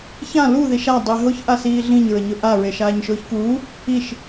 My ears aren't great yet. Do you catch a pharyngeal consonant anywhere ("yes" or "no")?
no